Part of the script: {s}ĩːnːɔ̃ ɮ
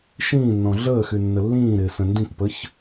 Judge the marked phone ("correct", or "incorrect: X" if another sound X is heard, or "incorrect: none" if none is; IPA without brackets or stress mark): incorrect: ʃ